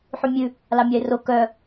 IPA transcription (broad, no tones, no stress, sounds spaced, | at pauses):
ħ y mʲ ʉ | l ɑ mʲ ɑ ɪ̯ r o k œ